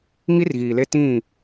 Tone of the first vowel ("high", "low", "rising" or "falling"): high